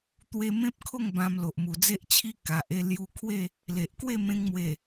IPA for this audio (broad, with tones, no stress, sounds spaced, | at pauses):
t̪ w e˦ m ẽ˦ p̚ kʰ o˥˧ ŋ b ã˧ m l o˨ ʔ m u˨˩ d͡z e˦ ʔ t͡ɕʰ i˦ k a˨ ʔ e˥˧ l j u˧ kʰ w e˥˧ | l e˨ ʔ k w e˥˧ m ẽ˧ ŋ m w e˨˩